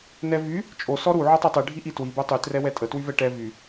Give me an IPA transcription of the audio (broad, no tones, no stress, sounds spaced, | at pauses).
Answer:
n ɛ v y | t͡ʃʼ o s ɔ ɾ u ʕ ɔ tˤ i tˤ i ɖʱ i ʔ i t w i b o tˤ y t r ɛ w ɛ tʼ ə t w y v ɛ ʈ ɛ v y